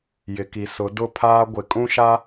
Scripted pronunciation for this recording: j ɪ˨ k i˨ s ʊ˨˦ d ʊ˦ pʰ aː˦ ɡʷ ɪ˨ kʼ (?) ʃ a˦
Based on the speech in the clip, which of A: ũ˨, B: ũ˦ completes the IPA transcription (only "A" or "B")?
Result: B